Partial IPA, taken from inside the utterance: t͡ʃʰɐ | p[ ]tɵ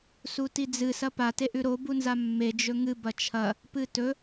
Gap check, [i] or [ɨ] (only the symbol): ɨ